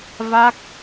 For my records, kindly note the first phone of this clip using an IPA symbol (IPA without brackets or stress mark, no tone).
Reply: v